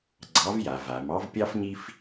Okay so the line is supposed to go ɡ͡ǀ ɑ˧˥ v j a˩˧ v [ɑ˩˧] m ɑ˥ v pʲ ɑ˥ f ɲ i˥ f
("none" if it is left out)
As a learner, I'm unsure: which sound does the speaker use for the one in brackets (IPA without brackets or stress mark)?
a˩˧